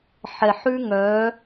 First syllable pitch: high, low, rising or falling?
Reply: low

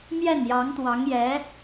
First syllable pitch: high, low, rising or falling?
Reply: falling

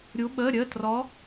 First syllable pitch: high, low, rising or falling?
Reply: rising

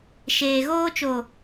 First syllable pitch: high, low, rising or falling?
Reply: low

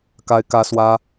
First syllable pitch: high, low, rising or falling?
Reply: high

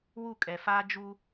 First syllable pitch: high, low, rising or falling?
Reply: falling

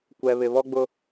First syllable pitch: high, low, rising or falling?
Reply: low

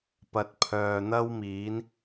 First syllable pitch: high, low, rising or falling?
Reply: low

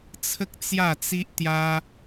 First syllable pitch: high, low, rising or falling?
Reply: high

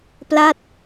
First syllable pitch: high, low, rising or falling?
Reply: falling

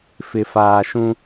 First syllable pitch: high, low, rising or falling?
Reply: low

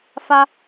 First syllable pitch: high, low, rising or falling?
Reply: high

